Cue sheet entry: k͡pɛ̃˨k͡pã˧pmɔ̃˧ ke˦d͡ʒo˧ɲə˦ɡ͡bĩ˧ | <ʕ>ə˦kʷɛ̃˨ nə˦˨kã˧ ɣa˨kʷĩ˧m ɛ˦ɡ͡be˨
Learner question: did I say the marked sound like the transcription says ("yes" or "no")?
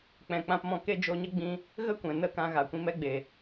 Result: no